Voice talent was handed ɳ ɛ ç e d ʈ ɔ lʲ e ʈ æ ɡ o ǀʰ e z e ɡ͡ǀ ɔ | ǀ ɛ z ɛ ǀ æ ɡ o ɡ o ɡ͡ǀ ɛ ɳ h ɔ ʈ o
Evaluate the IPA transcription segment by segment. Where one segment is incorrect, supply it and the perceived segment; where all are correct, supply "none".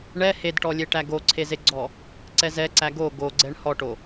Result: ç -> h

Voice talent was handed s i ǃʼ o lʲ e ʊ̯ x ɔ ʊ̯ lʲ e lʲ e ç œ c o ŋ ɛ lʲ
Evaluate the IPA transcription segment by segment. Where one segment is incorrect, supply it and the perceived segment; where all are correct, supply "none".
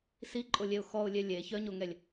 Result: c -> ɲ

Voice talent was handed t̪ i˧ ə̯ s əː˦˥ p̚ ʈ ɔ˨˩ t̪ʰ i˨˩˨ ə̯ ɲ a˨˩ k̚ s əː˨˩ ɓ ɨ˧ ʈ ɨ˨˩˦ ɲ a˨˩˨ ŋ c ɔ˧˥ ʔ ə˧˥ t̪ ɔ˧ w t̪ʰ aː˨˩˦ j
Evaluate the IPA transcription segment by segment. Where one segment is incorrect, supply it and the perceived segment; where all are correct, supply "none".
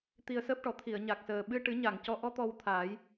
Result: ə˧˥ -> ɔ˧˥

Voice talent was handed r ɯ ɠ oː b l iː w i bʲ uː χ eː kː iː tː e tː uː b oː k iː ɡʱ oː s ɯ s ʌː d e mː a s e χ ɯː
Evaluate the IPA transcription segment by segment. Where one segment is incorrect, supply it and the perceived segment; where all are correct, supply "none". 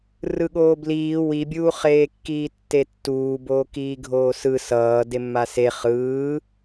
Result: none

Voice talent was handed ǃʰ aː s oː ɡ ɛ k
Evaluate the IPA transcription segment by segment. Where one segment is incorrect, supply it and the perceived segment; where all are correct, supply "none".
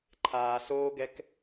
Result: none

